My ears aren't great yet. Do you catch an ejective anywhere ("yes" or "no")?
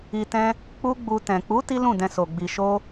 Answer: no